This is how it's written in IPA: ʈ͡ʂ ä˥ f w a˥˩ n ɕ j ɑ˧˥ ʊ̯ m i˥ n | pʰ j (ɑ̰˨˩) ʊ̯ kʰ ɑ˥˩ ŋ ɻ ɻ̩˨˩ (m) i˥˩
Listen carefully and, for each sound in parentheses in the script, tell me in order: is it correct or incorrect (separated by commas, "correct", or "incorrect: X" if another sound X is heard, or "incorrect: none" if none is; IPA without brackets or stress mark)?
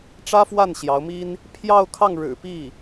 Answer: incorrect: ɑ˥˧, incorrect: p